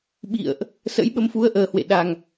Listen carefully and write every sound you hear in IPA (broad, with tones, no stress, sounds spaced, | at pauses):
ɓ ḭ˧˨ ə̯ ʔ | s ə̰˧˥ j ɓ ə˨˦ m f u˨˦ ə̯ ʔ əː˨˩ h w ḛ˧˨ ɗ a˨˩ ŋ